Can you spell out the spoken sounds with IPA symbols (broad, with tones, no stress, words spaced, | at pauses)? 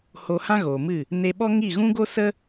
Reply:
ho˧hã˦ɣoː˨mɨ˦˨ | ne˧ɓɔ˦ ŋi˦˨ɣũ˦ ɡo˦sə˦